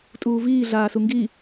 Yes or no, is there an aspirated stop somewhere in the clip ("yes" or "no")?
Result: no